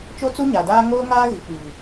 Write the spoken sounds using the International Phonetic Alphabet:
t͡ʃo˦t͡su˦ɲa˨daː˦ ŋoː˦ŋaː˦ ɣi˨k͡piː˨

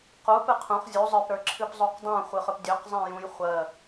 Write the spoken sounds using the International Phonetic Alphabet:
qupɨ qʰũχ zʲu zˤə˞pɾə˞ǁʰɨp zˤuqdˤũ χʷɨχɵpdʲɵq zˤẽjũj χʷɜ

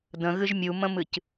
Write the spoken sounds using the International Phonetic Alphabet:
də̃ɣɨʒ mʲumə̃mɨc

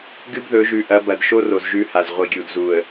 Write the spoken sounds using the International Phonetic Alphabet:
ɡɨ˦bðɵ˨˦ʒʉ˨ʔɐ˨˦ bɐ˨dʃo˦ro˨z ʒʉ˦ha˨z ʁʷi˨ɡʲu˨dzu˨ə̯

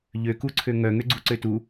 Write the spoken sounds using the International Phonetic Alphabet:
ʎøkuǀʰø ŋœŋøɡ͡ǀuǀø tu

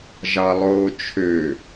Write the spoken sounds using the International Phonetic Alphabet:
ʒɑlˠoːt͡ʃʰø

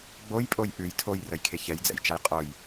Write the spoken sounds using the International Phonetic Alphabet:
ɡ͡bojpʼoj ʔʉj tʰojrəjkʰe çɛjd͡zɛ̰jt͡ʃaj qʼoj

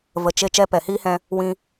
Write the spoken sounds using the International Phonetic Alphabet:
və˨t͡ʃe˧ t͡ʃɛ˦˨pɛ˨hiː˦hɛ̃˧ | wĩ˧

